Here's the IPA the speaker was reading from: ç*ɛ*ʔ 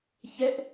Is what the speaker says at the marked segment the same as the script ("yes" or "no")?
yes